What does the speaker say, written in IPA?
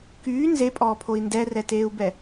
k yː n z e pʼ ɔː pʰ o i̯ n d ɛ r ɛ t eː u̯ b ɛ

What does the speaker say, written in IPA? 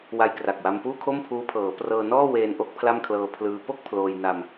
w a˧ j k r a˨˩ k̚ w a˧ m p uː˥˩ kʰ o˥˩ m pʰ uː˦˥ pʰ ɤː˩˦ p r ɤː˧ n ɔː˥˩ w eː˧ n ʔ o˦˥ k̚ pʰ l a˥˩ m kʰ l ɤː˧ pʰ l ɯː˧ p o˥˩ k̚ pʰ l oː˧ j n a˧ m

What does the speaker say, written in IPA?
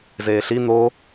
z eː ɬ i n̪ o

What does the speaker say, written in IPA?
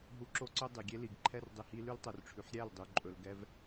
ɦ u˨ ǁ o˧ ǀ ɵ˧ dˤ i˨ ɡʲ e˦ l i˨ ɡ ǃʰ ɛ˦ r dˤ i˧ h i˦ l ʉ˦ l tˤ ɵ˨ r ʈ͡ʂʰ ʉ˨ ħ ɾʲ æ˦˨ l dˤ y˨ ǃʼ ɵ˨ l ɡ ɛ˧ v

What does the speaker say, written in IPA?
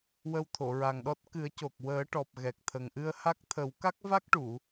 w ə˧ w t̪ʰ o˨˩˨ ɹ a˨˩ ŋ ɗ ɔ˦˥ t̚ k ɨ˨˩˦ ə̯ c o˨˩ k̚ w əː˨˩˦ ʈ ɔ˨˩ p̚ ɣ ɛ˨˩ k̚ t̪ʰ ə˨˩ ŋ ʔ ɨ˧ ə̯ h a˦˥ k̚ t̪ʰ ə˨˩˦ w k a˦˥ k̚ v a˦˥ k̚ ʈ u˨˩˨

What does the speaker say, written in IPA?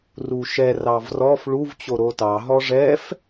r u ʃ ɛ r ɑ v r ɔ f ɭ u v t͡ɕ o ɾ o t ɑ ɦ ɔ ʐ ɛ f

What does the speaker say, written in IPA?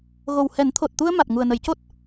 ɣ o˨˩ w h ɛ˨˩˦ n t̪ʰ o˨˩ t̚ t̪ u˧ ə̯ m a˨˩ t̚ ŋ u˨˩ ə̯ n ə˨˩˦ j c o˦˥ t̚

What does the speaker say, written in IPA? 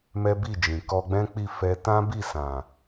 m ɛ˦ b i˦˨ d͡ʒ ĩ˨ k ɔ˧ ɡ͡b ɛ̃˦ k͡p i˦˨ f ɛ˧ t ã˦ b i˦˨ s ã˨

